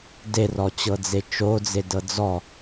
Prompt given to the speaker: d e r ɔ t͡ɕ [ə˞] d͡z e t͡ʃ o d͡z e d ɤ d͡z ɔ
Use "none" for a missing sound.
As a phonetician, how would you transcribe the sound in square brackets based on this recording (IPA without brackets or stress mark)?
ɤ